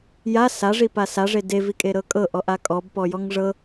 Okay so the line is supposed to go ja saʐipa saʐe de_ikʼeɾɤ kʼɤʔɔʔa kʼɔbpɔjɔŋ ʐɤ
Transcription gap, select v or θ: v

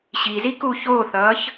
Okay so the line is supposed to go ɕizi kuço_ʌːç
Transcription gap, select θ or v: θ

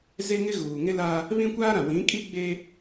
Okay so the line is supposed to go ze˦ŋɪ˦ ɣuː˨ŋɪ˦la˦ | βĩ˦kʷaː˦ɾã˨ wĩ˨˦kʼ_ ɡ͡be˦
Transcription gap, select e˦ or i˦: i˦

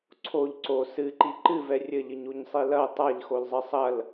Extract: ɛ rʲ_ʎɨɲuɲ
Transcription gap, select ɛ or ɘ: ɘ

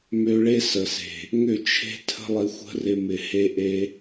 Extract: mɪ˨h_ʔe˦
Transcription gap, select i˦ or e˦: e˦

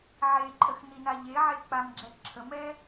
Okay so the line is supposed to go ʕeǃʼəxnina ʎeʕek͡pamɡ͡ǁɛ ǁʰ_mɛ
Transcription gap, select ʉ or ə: ə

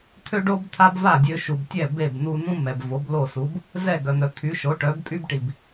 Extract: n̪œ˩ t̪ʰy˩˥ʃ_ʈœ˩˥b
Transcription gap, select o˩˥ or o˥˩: o˩˥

